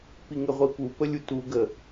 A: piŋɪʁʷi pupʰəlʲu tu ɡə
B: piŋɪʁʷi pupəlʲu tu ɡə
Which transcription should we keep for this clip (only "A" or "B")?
B